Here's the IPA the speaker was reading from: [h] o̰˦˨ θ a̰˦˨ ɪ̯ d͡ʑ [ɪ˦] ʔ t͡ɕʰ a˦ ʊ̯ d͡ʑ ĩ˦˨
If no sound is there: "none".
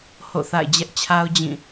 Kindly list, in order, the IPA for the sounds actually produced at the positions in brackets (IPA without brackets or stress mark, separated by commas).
h, ɛ˦